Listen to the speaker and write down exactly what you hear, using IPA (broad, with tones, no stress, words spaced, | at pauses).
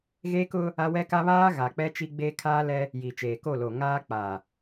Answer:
ɣe˦kʊ˦ | a˦wɛ˦ka˦ βaː˦ ɣa˨k͡pɛ˦t͡ʃi˦ ɡ͡beː˦kʰaː˦lɛ˦ | ji˨t͡ʃeː˨ko˦˨lo˨ ŋaː˦k͡pa˨